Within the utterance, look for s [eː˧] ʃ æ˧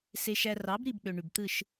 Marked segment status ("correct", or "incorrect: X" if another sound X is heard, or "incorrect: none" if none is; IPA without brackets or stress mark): incorrect: e˧